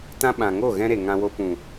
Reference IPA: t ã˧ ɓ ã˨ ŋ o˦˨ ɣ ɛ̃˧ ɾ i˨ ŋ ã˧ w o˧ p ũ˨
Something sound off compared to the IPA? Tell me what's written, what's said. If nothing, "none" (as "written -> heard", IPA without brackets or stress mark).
i˨ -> e˨